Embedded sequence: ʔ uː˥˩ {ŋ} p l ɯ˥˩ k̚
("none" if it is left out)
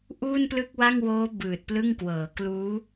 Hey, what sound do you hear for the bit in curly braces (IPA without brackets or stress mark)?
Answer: n